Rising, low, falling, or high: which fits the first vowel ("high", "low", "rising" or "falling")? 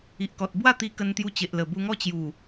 low